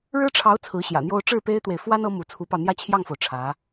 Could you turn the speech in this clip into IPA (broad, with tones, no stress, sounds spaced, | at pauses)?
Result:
ɻ ɻ̩˥ ʈ͡ʂʰ ɑ˧˥ ʊ̯ t͡sʰ ɹ̩˧˥ ɕ j ä̰˨˩ n̪ j o˥ ʊ̯ ʈ͡ʂ ɻ̩˥˩ p e˥ ɪ̯ t̪ w e˨ ɪ̯ f w a˥ n ɤ˧˥ m u˧˥ t͡sʰ u˧˥ p ɑ˧ ʊ̯ n̪ j ä˥˧ t͡ɕʰ j ɑ˥˩ ŋ f o˩ ʊ̯ ʈ͡ʂʰ ä˧˥